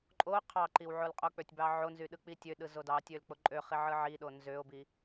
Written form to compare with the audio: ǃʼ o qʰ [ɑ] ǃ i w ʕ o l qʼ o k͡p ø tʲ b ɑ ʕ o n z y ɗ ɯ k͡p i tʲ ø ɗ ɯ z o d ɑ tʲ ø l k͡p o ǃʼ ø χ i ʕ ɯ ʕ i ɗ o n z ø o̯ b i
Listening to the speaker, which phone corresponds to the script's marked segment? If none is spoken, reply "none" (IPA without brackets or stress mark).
ɑ